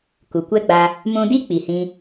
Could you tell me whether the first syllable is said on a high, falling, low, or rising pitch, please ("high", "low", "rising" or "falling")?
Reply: low